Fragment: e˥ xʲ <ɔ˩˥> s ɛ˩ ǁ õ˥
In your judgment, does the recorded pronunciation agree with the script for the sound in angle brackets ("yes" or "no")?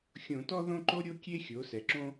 no